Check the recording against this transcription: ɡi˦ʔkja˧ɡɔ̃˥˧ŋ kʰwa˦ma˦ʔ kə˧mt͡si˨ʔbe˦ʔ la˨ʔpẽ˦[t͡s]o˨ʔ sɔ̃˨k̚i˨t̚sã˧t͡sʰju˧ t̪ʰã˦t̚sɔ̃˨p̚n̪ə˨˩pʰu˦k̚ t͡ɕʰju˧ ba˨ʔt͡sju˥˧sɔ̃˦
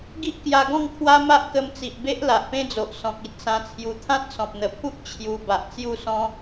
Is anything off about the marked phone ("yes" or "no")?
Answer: yes